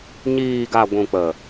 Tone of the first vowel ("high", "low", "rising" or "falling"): low